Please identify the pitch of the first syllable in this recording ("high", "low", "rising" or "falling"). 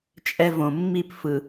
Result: high